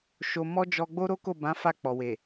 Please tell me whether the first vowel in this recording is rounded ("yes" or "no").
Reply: yes